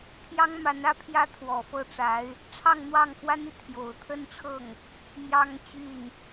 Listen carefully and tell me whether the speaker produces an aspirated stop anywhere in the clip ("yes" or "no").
yes